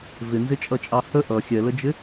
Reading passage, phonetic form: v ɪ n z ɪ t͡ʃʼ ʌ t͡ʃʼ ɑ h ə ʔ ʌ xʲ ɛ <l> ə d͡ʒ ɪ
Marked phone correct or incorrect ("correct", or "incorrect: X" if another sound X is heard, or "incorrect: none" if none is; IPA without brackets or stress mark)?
correct